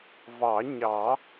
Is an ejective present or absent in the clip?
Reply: absent